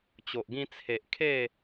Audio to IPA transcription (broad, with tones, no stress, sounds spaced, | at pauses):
t͡ɕ o˨ ʔ ɡ ĩ˧ t͡sʰ e˨ ʔ kʰ e˥˧